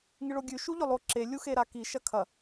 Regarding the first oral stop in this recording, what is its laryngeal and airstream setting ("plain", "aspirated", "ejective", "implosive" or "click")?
plain